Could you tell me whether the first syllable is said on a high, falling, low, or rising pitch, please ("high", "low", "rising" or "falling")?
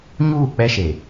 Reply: falling